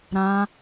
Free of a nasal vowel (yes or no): no